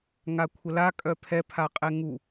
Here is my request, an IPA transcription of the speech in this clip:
ŋakʷʰəla kʼœpʰɛ pʰaqʼɛŋu

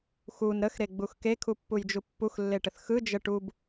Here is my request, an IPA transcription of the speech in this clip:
xun ɾəxɾeɡ͡bux kekʰupːujd͡ʒu pːuxlːeʈəθ xɯ d͡ʒəʈ ub

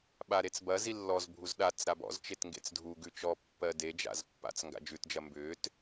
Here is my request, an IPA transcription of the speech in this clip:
ɓaɾet͡sbɐzi lːɔzbʱuz ɗat͡s ɾabɔ̰zt͡ʃet ŋɡḛt͡sdʱuɡʉ t͡ʃɔ pːɜded͡ʒa̰z pːa̰t͡s ŋɡa̰d͡ʒʉtd͡ʒɐ mbʏːt

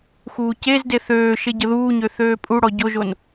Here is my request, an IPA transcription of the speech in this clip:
xuːcezde θøːʃe ɟəðuːɲø θøːpʼuɽɔ ɟoʒon

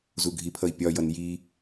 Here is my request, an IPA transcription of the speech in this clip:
zuɡʱipʰʌi̯ pʲɒjʌn ji

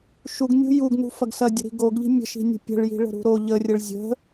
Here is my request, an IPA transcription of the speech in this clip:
ʃuɡnʲṳ juɡnṳ fɐɡsɐdʲə̤ɾi̤ ɡoɡʎi̤ mʲə̤ʃi̤nʲə̤ pʲə̤ɭji̤ ɭə̤ɾṳɾo ʎərʲəɭ zʲə̤

